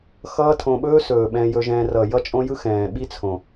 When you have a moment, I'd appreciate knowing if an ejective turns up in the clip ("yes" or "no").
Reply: yes